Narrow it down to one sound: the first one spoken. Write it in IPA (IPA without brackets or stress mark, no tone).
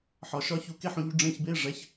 ħ